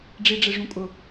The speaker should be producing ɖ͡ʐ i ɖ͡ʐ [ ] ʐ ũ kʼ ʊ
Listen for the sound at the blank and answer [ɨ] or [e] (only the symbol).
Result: e